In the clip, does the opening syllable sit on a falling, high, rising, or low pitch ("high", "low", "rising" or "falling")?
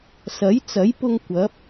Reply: rising